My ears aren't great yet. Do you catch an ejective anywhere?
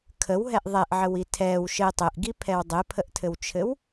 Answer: no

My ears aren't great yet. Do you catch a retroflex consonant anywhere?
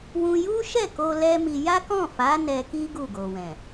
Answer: no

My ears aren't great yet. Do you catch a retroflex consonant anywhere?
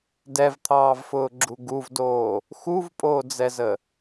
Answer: no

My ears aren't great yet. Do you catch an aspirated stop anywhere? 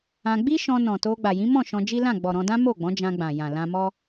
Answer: no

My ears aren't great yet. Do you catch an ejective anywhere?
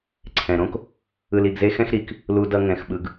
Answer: no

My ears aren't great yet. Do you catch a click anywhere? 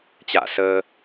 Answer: no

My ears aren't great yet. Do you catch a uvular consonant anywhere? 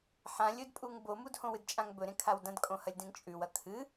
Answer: no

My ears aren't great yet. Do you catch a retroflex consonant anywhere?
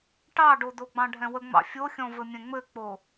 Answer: yes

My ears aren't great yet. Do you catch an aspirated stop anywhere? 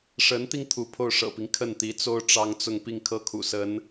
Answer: yes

